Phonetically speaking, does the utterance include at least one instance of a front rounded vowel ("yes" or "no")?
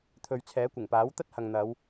no